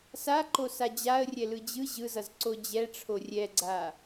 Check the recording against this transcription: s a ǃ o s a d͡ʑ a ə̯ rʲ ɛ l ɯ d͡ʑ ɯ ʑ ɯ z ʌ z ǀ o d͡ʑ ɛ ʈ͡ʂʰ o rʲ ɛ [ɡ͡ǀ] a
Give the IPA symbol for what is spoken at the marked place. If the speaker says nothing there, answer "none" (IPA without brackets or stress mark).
ɡ͡ǀ